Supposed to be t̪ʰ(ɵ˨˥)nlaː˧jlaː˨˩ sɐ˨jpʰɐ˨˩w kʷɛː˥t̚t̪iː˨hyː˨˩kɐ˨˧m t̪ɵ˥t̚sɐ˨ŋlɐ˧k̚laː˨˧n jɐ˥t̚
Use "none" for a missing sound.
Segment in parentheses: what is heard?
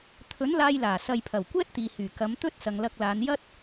ɵ˨˥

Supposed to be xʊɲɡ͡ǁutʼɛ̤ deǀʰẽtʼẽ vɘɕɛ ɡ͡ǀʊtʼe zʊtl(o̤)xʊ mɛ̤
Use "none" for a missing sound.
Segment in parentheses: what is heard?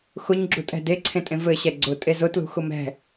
ṳ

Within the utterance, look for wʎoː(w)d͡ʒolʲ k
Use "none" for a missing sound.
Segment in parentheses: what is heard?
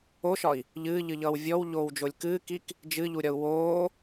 w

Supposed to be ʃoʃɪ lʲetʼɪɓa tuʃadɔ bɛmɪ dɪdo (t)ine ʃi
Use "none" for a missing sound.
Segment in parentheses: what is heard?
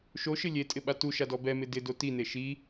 t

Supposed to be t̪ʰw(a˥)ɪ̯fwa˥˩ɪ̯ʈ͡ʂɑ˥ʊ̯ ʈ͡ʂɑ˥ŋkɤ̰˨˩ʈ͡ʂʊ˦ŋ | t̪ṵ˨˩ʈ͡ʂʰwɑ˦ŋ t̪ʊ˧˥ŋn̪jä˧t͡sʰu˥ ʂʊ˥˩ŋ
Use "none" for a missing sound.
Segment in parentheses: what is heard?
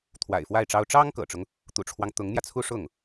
a̰˨˩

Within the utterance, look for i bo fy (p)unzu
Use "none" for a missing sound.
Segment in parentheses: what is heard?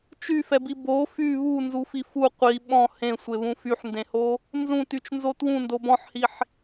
β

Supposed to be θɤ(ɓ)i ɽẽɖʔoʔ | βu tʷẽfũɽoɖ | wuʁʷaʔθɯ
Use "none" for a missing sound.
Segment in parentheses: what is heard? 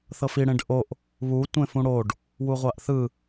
f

